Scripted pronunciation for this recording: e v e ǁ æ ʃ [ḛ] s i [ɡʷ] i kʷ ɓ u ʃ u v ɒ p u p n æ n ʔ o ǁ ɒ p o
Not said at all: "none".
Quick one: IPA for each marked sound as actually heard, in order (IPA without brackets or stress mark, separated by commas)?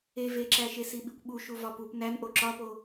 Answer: e, ɓ